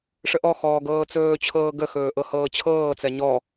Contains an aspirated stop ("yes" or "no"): yes